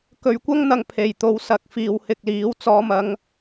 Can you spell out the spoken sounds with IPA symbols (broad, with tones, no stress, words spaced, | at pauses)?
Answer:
kɵ˨ɥkʷɐ˥ŋn̪ɐ˨ŋ pʰe˨˩j t̪o˨wsɐ˨k̚ fiː˨whɪ˧k̚liː˨˥w t͡sɔː˨˧mɐ˨˧ŋ